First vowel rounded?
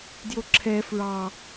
yes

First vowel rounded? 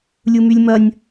yes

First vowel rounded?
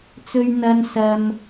yes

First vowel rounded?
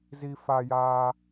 no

